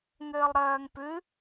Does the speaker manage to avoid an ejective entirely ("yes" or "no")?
yes